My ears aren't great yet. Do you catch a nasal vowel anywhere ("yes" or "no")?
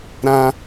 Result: yes